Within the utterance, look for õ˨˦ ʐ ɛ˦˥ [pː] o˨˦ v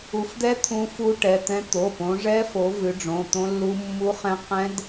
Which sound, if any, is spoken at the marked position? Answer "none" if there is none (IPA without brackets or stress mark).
f